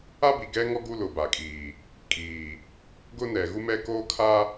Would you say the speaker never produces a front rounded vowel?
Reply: yes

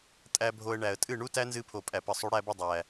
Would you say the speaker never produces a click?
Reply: yes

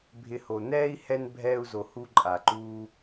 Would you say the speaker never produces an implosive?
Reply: yes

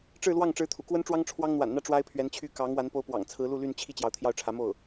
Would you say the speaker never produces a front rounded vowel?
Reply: no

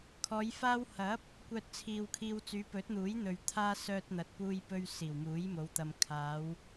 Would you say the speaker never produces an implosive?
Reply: yes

